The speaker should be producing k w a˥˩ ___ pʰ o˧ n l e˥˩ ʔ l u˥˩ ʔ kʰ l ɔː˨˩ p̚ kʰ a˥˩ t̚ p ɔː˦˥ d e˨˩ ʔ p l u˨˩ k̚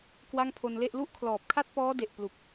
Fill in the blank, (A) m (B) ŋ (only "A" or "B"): B